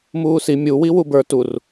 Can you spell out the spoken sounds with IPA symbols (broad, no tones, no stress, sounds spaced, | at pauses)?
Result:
m uː s i mʲ u w i w u b ə˞ t u r